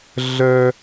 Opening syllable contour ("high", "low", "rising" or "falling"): high